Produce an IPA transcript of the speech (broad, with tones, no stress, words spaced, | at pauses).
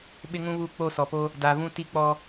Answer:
ɓɪ˦ŋũ˦βu˦˨ k͡po˦˨sɔ˨po˦ | da˨vũ˦ ti˦k͡pɔ˦